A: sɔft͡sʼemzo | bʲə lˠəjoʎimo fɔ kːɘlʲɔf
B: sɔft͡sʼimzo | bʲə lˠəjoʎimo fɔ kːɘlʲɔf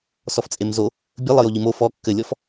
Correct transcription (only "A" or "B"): A